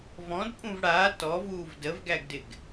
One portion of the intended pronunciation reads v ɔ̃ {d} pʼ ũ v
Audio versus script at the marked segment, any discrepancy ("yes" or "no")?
no